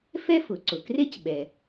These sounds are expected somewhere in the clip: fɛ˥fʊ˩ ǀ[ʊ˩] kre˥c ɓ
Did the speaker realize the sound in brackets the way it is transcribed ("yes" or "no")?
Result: yes